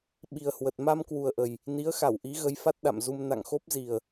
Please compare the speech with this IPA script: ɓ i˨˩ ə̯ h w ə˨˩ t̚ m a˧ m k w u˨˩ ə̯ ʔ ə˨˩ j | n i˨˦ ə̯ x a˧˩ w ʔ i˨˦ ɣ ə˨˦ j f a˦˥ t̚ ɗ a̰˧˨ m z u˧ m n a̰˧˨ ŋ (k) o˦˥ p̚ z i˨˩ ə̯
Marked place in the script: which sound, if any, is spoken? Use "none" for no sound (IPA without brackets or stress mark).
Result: x